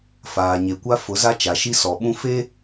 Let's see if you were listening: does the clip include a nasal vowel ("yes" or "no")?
yes